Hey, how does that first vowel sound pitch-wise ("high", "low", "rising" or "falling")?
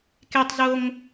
low